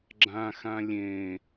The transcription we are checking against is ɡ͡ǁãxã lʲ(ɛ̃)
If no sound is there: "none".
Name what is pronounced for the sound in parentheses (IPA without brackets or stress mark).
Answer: ẽ